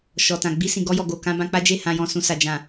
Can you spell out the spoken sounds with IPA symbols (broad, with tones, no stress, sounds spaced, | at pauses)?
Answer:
ʃ ɔ˨ t ã˨ ɡ͡b i˧ s ĩ˨ ɡ ɔ˧ j ɔ˨ ɡ o˨ k ã˧ b ã˧ k͡p a˦ d͡ʒ e˦˨ h ã˨ j ɔ̃˨ s ũ˨ s a˨ d͡ʒ ã˨